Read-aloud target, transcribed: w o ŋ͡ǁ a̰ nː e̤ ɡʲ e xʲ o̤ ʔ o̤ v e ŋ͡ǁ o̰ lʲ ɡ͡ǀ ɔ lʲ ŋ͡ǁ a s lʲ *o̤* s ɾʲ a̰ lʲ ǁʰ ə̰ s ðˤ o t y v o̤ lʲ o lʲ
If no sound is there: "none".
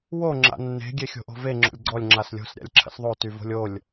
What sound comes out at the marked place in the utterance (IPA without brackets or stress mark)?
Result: o̤